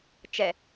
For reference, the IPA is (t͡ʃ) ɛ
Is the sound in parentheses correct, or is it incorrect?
correct